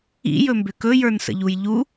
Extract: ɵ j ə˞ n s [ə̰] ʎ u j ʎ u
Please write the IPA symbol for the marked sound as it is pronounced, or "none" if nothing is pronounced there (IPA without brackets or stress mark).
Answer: ə̰